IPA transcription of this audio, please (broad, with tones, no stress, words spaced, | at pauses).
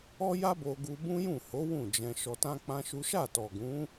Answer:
ɔ˦ja˦bo˧ɡu˧ bũ˦jũ˦˨ho˨˦ wũ˦˨ d͡ʒɛ̃˧ ʃɔ˧tã˦k͡pã˦ʃu˦ ʃa˦˨tɔ˨ɡũ˨˦